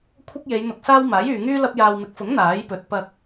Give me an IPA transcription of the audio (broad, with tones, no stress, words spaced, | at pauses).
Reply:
kʷʰɐ˥k̚je˨˧jn̪ʊ˧k̚saː˥w maː˨˥jyː˨ŋyː˥ lɐ˧p̚jaː˨wmɪ˨˥k̚fʊ˨˥ŋ n̪aː˨˥jpɵ˨˥t̚ pɐ˧k̚